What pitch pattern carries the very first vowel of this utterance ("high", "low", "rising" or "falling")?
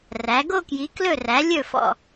rising